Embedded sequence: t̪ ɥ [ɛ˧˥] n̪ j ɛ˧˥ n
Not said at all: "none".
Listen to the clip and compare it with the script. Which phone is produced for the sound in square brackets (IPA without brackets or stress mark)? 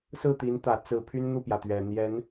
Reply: ɛ˨˩